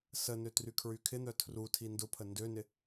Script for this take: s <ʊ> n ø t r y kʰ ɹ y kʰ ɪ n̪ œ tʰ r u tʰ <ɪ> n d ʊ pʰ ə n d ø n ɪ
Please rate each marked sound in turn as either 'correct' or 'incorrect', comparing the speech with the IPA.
incorrect: ə, incorrect: i

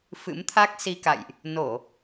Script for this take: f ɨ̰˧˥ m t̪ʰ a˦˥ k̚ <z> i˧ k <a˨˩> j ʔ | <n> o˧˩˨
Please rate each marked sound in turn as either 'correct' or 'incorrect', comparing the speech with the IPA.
incorrect: s, incorrect: a̰˧˨, correct

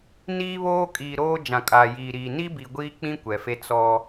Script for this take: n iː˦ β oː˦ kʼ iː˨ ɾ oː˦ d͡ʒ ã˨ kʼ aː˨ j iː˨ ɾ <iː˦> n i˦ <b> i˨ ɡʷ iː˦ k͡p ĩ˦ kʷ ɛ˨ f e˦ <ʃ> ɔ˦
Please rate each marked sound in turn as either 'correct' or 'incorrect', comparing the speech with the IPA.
incorrect: iː˨, correct, incorrect: t͡s

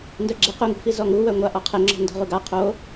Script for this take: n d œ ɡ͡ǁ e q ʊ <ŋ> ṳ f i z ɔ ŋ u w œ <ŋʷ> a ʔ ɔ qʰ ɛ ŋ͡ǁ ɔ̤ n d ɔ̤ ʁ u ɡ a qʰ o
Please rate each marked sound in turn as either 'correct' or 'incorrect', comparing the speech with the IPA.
correct, correct

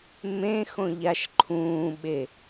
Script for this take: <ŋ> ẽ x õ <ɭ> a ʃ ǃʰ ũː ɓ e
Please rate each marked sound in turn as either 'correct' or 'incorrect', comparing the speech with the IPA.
incorrect: m, incorrect: ʎ

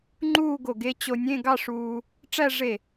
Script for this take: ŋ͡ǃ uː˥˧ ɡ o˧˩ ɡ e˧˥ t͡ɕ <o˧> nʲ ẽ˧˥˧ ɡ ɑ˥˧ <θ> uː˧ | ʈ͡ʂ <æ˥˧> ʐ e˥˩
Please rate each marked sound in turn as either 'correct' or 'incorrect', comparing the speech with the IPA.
correct, incorrect: ʂ, correct

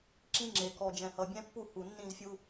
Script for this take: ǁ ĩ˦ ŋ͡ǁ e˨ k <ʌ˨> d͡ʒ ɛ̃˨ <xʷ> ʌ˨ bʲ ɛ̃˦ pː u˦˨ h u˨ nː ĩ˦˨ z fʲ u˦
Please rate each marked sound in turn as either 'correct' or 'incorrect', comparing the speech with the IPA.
incorrect: ɔ˨, incorrect: h

